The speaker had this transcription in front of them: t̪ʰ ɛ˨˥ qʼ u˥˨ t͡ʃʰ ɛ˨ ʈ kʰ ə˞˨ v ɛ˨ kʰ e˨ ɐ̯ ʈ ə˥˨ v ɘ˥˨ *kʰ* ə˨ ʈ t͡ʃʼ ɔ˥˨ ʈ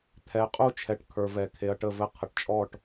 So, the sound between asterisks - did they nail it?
no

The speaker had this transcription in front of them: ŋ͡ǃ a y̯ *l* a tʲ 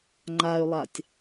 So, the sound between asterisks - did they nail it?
no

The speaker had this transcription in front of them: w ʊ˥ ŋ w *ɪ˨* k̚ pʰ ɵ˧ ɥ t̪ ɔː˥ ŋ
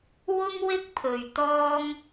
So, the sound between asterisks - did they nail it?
no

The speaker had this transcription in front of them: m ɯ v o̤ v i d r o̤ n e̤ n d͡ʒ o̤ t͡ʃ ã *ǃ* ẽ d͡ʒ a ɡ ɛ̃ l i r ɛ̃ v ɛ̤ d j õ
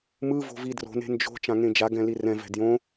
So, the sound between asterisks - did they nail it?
no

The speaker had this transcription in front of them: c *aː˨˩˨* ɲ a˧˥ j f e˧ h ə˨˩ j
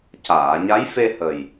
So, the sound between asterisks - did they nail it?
yes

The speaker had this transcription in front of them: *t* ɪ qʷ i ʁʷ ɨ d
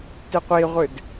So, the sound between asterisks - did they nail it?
yes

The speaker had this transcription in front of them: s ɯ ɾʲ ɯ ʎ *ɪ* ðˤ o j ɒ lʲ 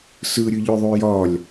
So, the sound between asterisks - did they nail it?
no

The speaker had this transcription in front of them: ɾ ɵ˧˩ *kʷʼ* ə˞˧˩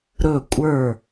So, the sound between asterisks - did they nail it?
yes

